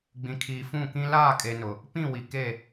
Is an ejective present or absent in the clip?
present